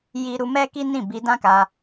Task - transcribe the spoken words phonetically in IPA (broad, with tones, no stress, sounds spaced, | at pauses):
j i˦ ɾ u˧ m ɛ˦ k i˦ n ĩ˦˨ b i˧ d ã˦ k a˧